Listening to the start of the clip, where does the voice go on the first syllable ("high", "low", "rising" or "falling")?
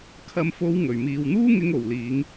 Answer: low